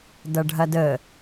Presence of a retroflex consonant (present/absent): present